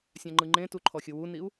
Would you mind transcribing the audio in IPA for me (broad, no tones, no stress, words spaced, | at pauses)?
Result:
sʲãŋ͡ǃɯŋ͡ǃẽtu ǃʰɔxʲɯwuniu̯